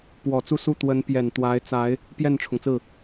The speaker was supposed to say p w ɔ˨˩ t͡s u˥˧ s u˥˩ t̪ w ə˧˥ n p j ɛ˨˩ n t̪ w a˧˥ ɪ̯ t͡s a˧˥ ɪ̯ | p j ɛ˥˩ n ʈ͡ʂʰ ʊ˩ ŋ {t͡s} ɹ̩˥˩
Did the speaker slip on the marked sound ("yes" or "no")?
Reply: no